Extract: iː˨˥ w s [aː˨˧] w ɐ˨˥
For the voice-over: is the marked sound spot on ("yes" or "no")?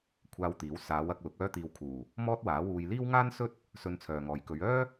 yes